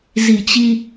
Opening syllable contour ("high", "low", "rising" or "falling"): low